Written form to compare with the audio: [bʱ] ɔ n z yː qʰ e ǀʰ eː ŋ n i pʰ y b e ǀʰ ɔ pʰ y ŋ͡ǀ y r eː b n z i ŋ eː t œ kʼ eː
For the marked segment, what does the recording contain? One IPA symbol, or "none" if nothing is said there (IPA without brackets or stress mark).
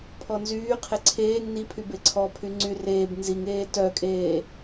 pʰ